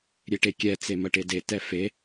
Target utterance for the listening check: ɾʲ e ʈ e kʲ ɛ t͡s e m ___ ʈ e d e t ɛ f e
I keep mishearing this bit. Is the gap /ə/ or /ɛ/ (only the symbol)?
ə